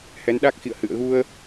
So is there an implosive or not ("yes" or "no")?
yes